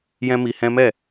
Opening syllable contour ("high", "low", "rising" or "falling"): high